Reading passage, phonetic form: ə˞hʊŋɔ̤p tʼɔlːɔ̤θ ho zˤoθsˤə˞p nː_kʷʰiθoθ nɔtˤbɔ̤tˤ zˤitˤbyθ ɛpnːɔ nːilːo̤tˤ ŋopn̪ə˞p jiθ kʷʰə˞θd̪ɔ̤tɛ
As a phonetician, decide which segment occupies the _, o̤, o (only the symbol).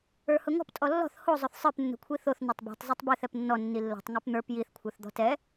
o̤